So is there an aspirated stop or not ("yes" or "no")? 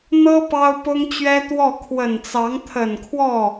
yes